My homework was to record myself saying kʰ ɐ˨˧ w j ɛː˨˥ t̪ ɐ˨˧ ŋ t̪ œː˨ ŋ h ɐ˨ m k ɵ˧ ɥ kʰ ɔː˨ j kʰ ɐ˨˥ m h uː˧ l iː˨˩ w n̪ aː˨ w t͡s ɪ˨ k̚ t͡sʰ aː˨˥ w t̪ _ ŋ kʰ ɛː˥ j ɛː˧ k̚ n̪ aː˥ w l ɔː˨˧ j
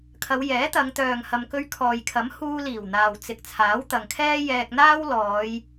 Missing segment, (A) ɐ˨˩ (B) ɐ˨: B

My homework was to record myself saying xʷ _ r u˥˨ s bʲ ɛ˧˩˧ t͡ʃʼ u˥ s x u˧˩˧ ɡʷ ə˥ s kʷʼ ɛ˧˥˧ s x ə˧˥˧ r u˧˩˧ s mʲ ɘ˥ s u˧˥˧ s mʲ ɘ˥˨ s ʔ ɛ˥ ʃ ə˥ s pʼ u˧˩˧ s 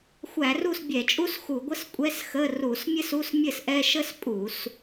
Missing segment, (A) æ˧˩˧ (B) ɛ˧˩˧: A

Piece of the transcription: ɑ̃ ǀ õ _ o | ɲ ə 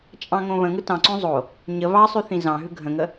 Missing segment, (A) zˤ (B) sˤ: A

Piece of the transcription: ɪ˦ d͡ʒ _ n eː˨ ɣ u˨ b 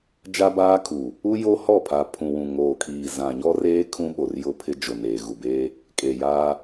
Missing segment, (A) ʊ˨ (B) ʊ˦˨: A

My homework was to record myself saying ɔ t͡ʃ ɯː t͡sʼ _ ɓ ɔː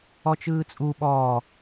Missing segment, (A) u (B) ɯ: A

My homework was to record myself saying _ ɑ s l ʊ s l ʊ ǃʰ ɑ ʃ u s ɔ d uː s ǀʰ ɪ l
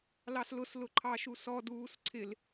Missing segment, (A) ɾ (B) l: B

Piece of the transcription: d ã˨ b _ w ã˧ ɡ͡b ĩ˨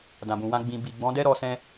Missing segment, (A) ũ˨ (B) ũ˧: A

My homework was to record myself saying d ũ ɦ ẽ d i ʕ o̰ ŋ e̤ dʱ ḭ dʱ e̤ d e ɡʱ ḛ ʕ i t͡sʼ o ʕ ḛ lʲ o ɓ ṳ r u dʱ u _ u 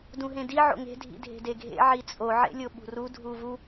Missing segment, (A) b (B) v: B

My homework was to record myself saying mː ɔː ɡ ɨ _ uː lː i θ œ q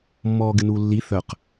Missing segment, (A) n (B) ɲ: A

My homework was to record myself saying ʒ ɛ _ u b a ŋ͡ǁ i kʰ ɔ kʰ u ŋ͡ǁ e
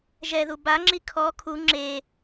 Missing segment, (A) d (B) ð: B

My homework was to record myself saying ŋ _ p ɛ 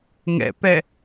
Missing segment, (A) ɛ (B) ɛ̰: B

